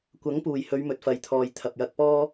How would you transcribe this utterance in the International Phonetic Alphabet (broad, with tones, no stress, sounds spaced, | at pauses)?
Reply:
kʷ ɐ˨˥ ŋ p uː˨˩ j h ɵ˨˧ ɥ m ɵ˨ t̚ f ɐ˨ j t̪ʰ ɔː˨ j t̪ʰ ɐ˨ p̚ j ɐ˧ k̚ p ɔː˥